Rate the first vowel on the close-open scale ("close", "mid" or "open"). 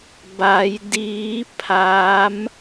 open